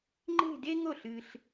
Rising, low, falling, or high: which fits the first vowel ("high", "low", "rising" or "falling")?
falling